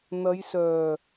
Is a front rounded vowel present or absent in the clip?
present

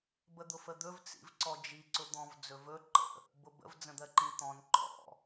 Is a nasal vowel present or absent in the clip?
present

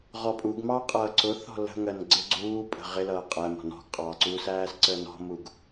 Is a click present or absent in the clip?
present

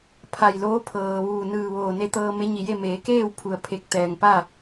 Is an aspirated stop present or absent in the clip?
present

